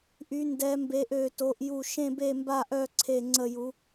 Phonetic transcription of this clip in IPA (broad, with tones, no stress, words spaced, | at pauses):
ʔy˧˥ndɛ˧˥mbe˧˥ʔ ø˥˧to˧˥ʔju˥˧ ʃẽ˥˧be˥˧mba˥˧ʔœ˥˧ ǀʰe˥˧ŋ͡ǀə˥˧ju˧˥